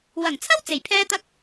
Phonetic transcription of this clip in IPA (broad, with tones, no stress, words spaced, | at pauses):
wɐ˨˩ŋt͡sʰɐ˥w t͡se˨˩jpʰɛː˥t̪ɐ˥k̚